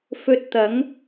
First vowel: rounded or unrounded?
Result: rounded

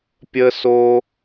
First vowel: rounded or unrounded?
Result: unrounded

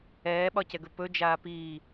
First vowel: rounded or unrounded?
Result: unrounded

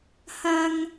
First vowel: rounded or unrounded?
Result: unrounded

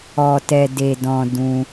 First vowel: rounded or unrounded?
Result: rounded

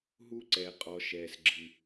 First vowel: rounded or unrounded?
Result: rounded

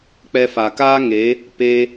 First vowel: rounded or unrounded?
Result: unrounded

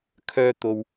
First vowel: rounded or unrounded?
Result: rounded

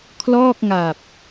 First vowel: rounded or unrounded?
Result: rounded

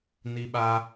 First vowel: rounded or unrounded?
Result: unrounded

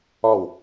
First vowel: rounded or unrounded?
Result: rounded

